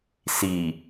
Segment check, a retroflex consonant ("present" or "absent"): absent